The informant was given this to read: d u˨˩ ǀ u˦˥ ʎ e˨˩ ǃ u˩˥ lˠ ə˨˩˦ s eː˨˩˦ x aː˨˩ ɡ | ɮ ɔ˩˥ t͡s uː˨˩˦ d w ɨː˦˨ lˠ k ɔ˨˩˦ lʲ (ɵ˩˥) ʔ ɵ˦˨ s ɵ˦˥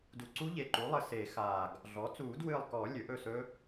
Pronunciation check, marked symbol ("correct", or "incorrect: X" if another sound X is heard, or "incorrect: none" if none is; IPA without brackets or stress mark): correct